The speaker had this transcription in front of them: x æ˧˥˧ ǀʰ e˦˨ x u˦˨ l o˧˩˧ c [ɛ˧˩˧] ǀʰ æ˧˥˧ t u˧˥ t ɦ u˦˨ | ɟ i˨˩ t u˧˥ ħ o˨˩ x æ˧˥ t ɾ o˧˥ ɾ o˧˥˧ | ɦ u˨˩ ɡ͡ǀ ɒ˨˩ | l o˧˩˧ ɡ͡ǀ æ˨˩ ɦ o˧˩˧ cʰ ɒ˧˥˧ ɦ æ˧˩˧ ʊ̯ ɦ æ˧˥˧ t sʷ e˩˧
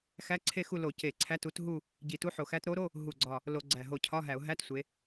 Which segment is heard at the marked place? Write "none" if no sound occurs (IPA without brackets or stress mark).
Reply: e˧˩˧